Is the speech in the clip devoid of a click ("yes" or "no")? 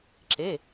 no